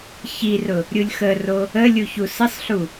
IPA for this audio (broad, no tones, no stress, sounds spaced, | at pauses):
ç i r ʊ | ɾʲ u lʲ x ə r o | ə lʲ u ç u s ə sˤ ɬ u